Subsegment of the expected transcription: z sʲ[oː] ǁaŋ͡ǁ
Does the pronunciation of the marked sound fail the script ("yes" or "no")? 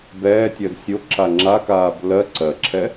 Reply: yes